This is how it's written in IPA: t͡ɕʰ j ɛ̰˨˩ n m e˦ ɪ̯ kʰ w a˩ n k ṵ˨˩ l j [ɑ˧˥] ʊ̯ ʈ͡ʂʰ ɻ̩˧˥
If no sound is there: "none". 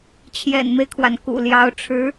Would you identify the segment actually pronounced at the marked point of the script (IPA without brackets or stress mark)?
ɑ˧˥